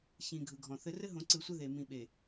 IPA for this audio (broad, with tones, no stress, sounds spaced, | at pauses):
ç ĩ˨ ɡʱ ɯ˨ ɡʱ ɔ̃˨ θ ɘ˦ r ɘ˦ ɦ õ˨ ǀ ɯ˨ sʷ ɘ˦ ð e˨ m ĩ˨ ɓ e˨